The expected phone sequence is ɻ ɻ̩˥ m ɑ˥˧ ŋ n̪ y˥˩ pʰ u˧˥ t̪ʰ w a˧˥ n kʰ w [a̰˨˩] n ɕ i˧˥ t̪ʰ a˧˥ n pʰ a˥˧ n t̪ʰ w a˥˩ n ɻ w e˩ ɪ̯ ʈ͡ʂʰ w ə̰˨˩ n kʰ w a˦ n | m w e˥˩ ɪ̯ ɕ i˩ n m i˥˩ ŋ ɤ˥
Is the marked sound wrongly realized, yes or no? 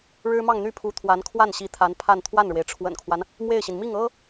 yes